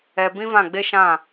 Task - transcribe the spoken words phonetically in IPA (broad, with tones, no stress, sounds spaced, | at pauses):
ɛ˧ b ĩ˦ v ã˦˨ ɡ͡b e˦ ʃ ã˦˨